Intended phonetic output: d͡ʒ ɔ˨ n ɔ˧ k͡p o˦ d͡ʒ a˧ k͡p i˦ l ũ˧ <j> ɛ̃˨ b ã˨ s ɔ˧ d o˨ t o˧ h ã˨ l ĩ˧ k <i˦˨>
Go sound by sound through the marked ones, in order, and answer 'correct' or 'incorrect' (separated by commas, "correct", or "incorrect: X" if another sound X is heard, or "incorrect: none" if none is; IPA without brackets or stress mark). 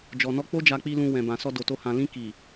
incorrect: w, incorrect: i˨